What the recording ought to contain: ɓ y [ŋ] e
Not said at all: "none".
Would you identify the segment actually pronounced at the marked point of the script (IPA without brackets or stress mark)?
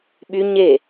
ɲ